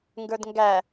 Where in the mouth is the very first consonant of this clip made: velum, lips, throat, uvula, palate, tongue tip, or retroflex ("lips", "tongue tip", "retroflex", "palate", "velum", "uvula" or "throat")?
velum